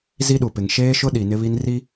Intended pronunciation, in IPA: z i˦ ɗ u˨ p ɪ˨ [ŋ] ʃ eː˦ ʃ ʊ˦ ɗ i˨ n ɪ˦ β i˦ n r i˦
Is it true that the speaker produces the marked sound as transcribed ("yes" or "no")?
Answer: yes